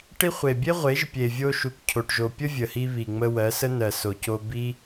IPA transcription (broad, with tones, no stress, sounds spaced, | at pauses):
ʈ i˦ χʷ e˨ bʲ e˦ ʁʷ e˨˦ ʒ pʲ e˨ vʲ o˧ ʃ u˨ k cʰ o˨ ʈ ʒ o˨ pʲ ə˦ vʲ ə˨ h i˧ β i˨ ŋ͡m ə˧ w ɜ˨˦ s ə˦ n ɜ˨ s o˨ c o˧ b i˦